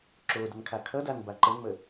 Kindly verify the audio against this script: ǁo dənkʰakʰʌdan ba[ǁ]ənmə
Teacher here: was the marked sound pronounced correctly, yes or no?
no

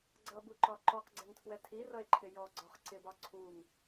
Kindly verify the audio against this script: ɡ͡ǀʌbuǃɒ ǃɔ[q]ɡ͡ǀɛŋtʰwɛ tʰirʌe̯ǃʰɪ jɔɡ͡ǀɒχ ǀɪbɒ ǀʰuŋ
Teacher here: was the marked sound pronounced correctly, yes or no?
yes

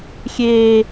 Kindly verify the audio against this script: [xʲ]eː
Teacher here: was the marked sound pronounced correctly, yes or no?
yes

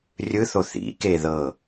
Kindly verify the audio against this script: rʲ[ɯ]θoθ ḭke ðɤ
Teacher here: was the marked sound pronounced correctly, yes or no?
yes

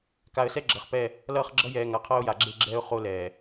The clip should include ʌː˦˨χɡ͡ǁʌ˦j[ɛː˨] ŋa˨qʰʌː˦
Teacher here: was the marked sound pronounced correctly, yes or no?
yes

